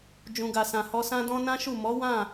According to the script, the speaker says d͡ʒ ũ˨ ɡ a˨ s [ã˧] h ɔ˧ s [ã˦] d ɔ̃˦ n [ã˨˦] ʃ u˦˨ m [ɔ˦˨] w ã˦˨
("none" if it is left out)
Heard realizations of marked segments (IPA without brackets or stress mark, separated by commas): ã˨, ã˦, ã˦, ɔ˨˦